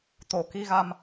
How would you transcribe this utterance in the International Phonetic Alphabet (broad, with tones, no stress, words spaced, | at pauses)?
t̪o˨˩˨ki˧ɣa˧m